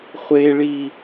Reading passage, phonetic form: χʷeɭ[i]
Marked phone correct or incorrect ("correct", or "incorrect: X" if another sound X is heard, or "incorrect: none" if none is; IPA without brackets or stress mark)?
correct